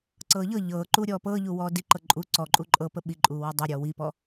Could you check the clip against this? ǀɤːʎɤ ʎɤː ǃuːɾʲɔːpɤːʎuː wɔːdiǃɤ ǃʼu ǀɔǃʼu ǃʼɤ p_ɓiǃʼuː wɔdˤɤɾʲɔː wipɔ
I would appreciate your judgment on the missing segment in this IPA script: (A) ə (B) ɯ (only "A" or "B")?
A